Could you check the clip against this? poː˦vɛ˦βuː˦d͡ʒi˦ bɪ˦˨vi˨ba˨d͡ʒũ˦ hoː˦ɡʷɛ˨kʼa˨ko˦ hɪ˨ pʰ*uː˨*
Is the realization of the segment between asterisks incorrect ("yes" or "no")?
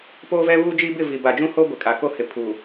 no